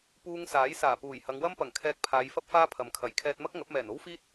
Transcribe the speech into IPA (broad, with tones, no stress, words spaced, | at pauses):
puː˧ŋsaː˨˥jsaː˨˩puː˨˩j hɐ˨˧ŋwɐ˥mpɐ˨˩ŋkʰɛː˧k̚ pʰaː˨˧jfɐ˥p̚faː˥ pʰɐ˨mkʰɐ˨˩j kʰɛː˧t̚mɐ˥k̚ŋɐ˨˥p̚mɛː˨˩n o˥wfiː˥t̚